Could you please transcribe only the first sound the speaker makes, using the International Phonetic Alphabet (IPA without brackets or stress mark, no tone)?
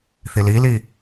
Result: θ